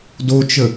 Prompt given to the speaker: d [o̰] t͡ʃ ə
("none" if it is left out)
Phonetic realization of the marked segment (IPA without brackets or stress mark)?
o